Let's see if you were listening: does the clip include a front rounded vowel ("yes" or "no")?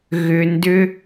yes